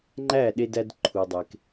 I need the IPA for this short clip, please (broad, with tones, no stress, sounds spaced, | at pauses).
ŋ͡ǃ æ˥˩ ɗ e˧ d æ˧ d ǃʰ u˩ dˤ e˩ k